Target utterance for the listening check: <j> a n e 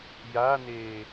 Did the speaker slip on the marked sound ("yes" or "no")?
no